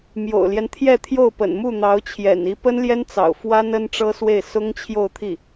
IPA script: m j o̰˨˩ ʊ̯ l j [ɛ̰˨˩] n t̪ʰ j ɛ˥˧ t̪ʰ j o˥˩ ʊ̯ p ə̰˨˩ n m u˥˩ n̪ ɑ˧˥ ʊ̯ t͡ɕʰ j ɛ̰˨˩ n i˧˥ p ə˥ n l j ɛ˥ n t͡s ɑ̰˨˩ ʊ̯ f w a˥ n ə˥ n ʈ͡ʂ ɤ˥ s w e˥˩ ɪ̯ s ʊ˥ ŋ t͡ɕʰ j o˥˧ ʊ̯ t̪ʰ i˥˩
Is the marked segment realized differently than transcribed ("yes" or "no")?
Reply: yes